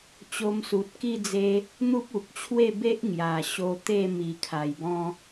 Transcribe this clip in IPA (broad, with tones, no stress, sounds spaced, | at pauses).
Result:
t͡ɕ o˧ m s u˨ t̚ k i˥˧ d͡z e˧ | n̪ u˦ p̚ u˨ k̚ t͡ɕʰ w e˥˧ b e˦ ʔ ŋ j a˨˩ ɕ o˧ t̪ e˥˧ m i˨˩ kʰ a˨˩ j b ɔ̃˦